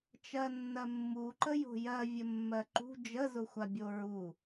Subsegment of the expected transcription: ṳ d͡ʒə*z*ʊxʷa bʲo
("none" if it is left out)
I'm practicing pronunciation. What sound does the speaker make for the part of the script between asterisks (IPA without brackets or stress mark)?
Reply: z